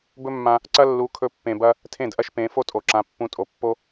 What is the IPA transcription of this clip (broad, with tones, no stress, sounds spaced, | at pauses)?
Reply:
b ɵ˦ mː ã˧ | ǀ ɐ˦ lː u˨˦ kʰ ɵ˧ pː ẽ˨ b ɐ˦ | tʰ ẽ˦˨ d ʔ ɐ˦ ʃ p ẽ˨˦ f o˦ tʼ o˨ ǁ ã˨˦ pː ũ˧ tʼ o˨ pː o˦